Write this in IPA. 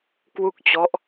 kwu˥˩k̚t͡ɕɔ˦˥ʔ

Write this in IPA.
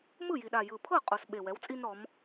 mɯ˥˩ji˨˩ɗa˨˩ jɯ˨˩pʰɤ˥˩ qʼo˨˩s ɓe˨˩wɛ˩˥wt͡sʼi˦n ɾɔ˩˧m

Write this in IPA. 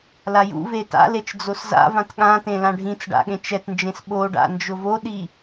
lajṵve ta̰let͡ʃ d͡zosza̰vãt ɠãtẽ lãɖʱĩt͡sɖa̰ ɠẽt͡ʃɛtnd͡ʒẽs ɓoɖa̰ nd͡ʒʊvoɗi

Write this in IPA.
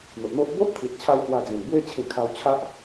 n̪o˨ʔn̪o˦ʔ bo˦ʔt̪ʰi˨t̚t͡ɕʰa˧w hwa˧d͡zẽ˨˩n bwe˧t͡ɕʰĩ˨˩ kʰa˧wt͡ɕʰa˦ʔ

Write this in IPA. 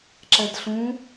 ǁɛdɬũ

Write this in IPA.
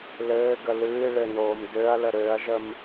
lɘːɡə lɨː ɭɘnoːm døɐ̯lə ɾøɐ̯ʒəm

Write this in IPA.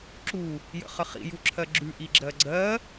ǁu | jə̰χəχḭ juǁʰɜɡ͡ǁʉ ʔiɡ͡ǁɜɡ͡ǀɜ

